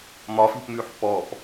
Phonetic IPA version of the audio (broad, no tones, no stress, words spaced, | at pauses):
mɒfi̤pmʉːħ pɔp